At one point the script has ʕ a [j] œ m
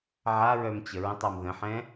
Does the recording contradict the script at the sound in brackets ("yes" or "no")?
yes